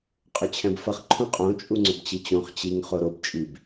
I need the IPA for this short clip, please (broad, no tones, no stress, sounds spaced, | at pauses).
qʼ ʏ t͡ɕʰ ɛ̃ b f ʌ χ ǃʰ ũ qʼ õ t͡ʃʼ u ŋ͡ǀ ʏ b t͡ɕ i t͡ɕ õ χ t͡ɕ i ŋ χ o ɾ o b t͡ʃʼ i b